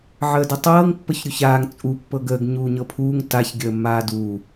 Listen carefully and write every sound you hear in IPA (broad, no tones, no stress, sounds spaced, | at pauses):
ʕ əː d ə tˤ ɤː ŋ pː ə ç ɾʲ u ç aː ŋ t͡sʼ u pː ɤ ɡ əː ɡ ɲ uː ɲ ɤ pʰ uː ŋ t a ç ɡʲ əː mː aː d uː